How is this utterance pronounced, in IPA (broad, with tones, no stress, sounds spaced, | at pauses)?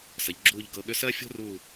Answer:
s ə˩˧ ʎ ɡ͡ǁ uː˦˨ ʎ ɡ ɤ˦˨ ɠ ʏ˥ s ɜ˥ fʲ o̤˥ r uː˦˨